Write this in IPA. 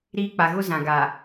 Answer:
ɾ iː˦ k͡p a˨ ɣ ʊ˦ z ã˨ ɡ a˨

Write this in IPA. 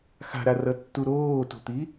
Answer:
x a̤ ɾ a r ʌ tː u ɾ oː t o̤ t̪ i

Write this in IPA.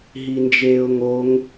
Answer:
ɦ i n d͡ʒ eː ʊ̯ ŋ o ŋ

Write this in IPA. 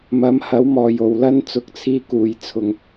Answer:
m ɐ˨˥ m h ɐ˨˥ w m ɔː˨ j o˨ w l ɐ˥ n t͡s ʊ˨˥ k̚ t͡sʰ iː˧ k uː˨ j t͡sʰ ʊ˨˧ ŋ

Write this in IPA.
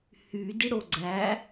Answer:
h y d i ɽ o ɡ͡ǀ æ

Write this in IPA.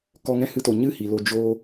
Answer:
k ɔ˧ ŋ ɛ̃˦ h ɨ˧ t o˨ ɲ ɨ˦˨ h i˨ l o˧ d͡ʒ oː˧

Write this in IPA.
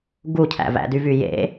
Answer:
ɡ u cʰ æ̰ v æ̰ d y v y j ḛ

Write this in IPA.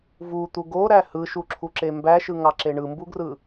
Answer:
v u t̪ u ɡ o ɾ æ h ɯ ʃ u ǁʰ u ǁ e m b æ ʃ ɯ ŋ ɑ ǁ e ɳ ɯ m b u ɡ r ɯ

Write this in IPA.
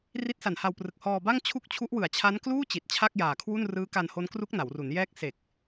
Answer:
r i˦˥ t̚ s a˨˩ n h a˧ w p r ɯ˨˩ k̚ h ɔː˧ b a˥˩ ŋ t͡ɕʰ u˦˥ k̚ t͡ɕʰ u˦˥ ʔ w ɯ˨˩ a̯ t͡ɕʰ a˦˥ n k l uː˥˩ t͡ɕ i˨˩ t̚ t͡ɕʰ a˥˩ k̚ j aː˨˩ kʰ w u˥˩ n r ɯː˦˥ k a˧ n h o˦˥ n k r u˦˥ k̚ n a˩˦ w r u˩˦ n j ɛː˦˥ k̚ s e˨˩ k̚

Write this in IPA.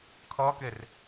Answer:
kʰ ʌː k e r

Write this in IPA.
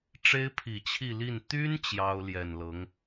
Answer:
ʈ͡ʂ e˥ ɪ̯ pʰ i˨˩ t͡ɕʰ i˥˧ l i˥˩ n t̪ y˥ n t͡ɕ j ɑ˥ ʊ̯ l j ɛ˨˩ n l ɤ˧˥ ŋ

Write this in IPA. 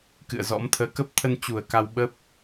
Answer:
k ɨ̰˧˨ ə̯ z ɔ̰˧˥ m t̪ʰ əː˨˦ k ə˦˥ p̚ t̪ʰ ə˧ n t͡ɕ u˧˩ ə̯ k a˧ w ɓ ə˦˥ p̚

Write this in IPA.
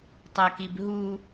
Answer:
tˤ ɐ k i b ɦ u

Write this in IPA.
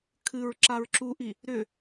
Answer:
kʰ ɨ ɹ ǁ a ɹ ǁ u ʔ i | ɾ ʏ

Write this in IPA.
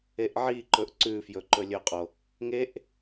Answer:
e ʔ ʕ i ǃ ɵ ʔ ǀ ʉ f j ɵ ǃ ɵ lʲ ɵ qʼ o | ŋ e ʔ

